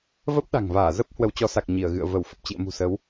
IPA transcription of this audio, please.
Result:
v ə˦˥ p̚ ɗ a̤˨˩ ŋ v aː˧˩ z ə˦˥ p̚ h w ə˨˦ w t͡ɕ ɔ˨˦ s a˨˩ k̚ ɲ i˧˩ ə̯ ɣ ɨ̰˧˨ ə̯ v ə˧˩ w f ə˨˩ p̚ t͡ɕ ḭ˧˨ ə̯ m ṳ˨˩ s ə˨˦ w

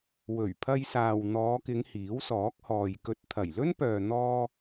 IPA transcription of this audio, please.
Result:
w ɵ˨˩ ɥ pʰ ɐ˧ j s aː˨ w n̪ ɔː˨˧ k ɪ˨˧ ŋ h iː˨˥ w s ɔː˨˥ k̚ h ɔː˨ j k ɵ˧ t̚ t̪ʰ ɐ˨˩ j l ɵ˥ n p œː˨ n̪ ɔː˧

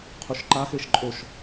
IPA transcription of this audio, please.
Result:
qʰ u ʃ ǃ a x e ʃ ǃʼ o ʃ

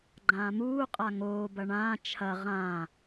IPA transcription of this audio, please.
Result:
ɡ͡ǃ ãː m uː qʼ a ŋ oː b ɐ ɳ ãː t͡ʃʰ ɐ ʁ ã

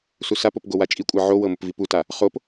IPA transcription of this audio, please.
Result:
s u s a p o p ɡ o w a t͡ʃʼ i kʷʼ ɤ ʕ o w ɤ m ʊ p v i p u t a | χ o p

